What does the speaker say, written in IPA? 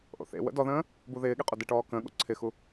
ʔ o̰ θ ḛ w ə̰ d ɔ ð ə̃ː | b u ð ɪː ɠ e qʼ o d ɪ ʈ ɔː k ə̃ː ɠ o̰ ǀʰ ɪ x u

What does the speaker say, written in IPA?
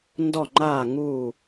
n d ɔ˥˧ ŋ͡ǃ aː˥˧ ŋ uː˥˧

